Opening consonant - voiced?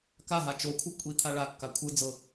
no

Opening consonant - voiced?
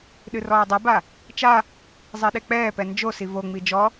yes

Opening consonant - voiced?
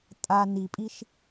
no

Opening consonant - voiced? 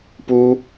no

